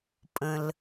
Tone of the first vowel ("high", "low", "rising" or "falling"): low